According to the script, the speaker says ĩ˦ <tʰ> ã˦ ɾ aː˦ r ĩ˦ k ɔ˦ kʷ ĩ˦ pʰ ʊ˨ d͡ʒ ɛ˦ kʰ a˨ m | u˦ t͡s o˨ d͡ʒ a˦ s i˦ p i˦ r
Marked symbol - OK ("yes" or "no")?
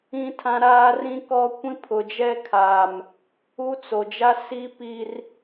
yes